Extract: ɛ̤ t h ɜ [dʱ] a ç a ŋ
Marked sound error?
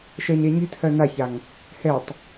yes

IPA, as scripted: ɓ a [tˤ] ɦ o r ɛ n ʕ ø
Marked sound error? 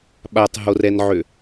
no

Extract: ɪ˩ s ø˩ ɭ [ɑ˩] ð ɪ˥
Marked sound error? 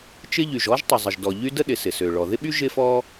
yes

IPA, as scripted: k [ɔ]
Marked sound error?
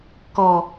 no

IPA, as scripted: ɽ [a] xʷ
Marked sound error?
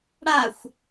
no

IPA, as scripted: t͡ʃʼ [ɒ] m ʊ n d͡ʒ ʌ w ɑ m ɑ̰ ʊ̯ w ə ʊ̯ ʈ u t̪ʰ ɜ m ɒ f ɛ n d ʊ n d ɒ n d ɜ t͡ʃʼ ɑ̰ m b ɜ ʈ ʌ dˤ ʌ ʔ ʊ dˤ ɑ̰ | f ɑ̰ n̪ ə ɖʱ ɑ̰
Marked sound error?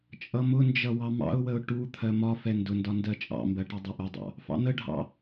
yes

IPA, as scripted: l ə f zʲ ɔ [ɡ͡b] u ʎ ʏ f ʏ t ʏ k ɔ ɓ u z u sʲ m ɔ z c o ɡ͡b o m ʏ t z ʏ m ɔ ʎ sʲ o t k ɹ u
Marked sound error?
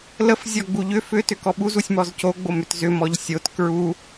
no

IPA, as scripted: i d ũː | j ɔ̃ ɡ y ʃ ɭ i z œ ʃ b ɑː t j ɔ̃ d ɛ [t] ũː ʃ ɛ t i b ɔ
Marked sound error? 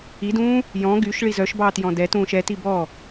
no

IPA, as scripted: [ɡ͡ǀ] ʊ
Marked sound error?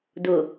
yes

